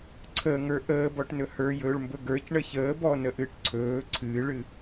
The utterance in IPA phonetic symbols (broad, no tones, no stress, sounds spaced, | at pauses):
ǀʰ əː ŋ ə˞ ʔ əː b ɔ ʈ n ɵ h ə˞ j ɵː ɭ m b ɵ ɡ ə˞ c ɳ ə ç əː b ɔ n ə ʔ ɨː ʈ ǀʰ ɵː ǀʰ ɨː ɭ ɨ